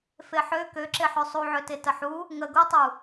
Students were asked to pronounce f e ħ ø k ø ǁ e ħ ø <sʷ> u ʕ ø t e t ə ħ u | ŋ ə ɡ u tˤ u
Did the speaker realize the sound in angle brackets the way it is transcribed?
no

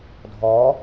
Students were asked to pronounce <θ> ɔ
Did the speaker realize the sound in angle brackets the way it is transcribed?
no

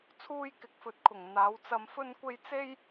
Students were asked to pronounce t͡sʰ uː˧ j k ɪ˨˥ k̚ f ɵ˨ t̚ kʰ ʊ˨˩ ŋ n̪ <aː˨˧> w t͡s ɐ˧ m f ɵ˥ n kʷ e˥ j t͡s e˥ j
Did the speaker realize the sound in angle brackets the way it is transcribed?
yes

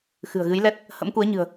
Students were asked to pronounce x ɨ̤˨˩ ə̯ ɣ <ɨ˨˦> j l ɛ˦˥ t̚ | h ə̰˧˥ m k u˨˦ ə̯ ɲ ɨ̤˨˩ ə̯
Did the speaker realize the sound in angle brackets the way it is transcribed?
yes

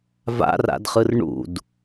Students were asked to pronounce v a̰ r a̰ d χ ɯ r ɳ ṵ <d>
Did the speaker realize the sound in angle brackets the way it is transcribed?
yes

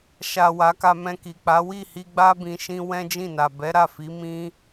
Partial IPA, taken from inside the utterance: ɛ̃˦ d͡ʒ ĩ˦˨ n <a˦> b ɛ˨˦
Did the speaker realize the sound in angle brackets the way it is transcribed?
no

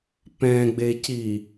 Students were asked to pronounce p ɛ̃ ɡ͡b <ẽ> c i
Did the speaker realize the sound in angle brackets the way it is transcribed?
no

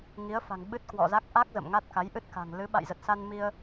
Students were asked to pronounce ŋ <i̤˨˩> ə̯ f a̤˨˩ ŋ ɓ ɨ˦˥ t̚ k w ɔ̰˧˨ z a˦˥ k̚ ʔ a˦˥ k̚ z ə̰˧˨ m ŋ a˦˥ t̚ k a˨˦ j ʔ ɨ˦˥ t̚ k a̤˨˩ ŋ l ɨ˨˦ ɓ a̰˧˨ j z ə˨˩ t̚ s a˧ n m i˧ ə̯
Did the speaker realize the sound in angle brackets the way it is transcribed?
no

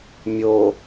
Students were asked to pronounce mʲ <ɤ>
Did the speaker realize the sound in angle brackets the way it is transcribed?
no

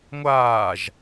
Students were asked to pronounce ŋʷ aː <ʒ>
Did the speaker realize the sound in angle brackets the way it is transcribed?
yes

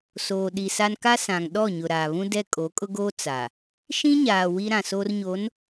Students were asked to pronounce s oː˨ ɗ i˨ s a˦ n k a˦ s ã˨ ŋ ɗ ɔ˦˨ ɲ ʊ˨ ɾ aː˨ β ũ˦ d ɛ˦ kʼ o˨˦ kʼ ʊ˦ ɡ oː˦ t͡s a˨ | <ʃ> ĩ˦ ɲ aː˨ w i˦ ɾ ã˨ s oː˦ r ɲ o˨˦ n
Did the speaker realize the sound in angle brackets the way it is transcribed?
yes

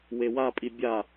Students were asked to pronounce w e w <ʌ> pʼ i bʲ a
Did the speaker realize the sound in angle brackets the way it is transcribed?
no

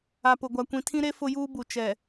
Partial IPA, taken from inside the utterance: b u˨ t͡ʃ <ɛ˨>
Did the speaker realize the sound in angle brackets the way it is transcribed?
yes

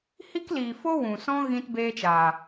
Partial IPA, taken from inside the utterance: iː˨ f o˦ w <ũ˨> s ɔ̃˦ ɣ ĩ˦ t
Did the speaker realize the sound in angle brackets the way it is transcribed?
yes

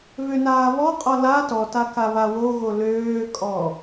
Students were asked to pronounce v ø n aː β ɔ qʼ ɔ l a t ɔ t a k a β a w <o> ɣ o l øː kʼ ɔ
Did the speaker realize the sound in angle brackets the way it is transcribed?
yes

